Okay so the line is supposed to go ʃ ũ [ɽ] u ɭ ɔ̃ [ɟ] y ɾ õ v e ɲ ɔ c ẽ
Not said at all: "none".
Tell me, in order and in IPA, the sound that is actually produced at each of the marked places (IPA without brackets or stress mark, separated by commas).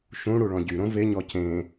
ɽ, ɟ